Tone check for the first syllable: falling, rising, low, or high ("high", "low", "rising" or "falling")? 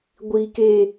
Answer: high